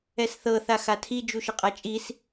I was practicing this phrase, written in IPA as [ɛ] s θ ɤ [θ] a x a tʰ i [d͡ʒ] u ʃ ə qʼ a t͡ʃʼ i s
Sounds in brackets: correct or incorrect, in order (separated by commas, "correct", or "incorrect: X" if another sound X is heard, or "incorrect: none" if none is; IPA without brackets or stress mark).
correct, correct, correct